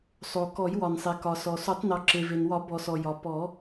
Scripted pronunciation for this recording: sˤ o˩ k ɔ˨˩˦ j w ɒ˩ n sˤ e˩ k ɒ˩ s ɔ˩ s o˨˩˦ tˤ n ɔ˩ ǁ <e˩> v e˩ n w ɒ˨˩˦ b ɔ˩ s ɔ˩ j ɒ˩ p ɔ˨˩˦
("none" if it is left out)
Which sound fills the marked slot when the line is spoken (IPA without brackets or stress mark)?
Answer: e˩